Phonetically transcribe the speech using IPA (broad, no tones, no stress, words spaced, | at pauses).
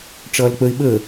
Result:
ʈ͡ʂʌːlk͡pəɪ̯ ɓə